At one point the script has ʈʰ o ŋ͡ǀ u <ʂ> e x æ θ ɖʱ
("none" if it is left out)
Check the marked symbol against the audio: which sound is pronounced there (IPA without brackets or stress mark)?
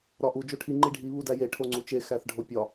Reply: t͡ʃ